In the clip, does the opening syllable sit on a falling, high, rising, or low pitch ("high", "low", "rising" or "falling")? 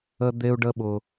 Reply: high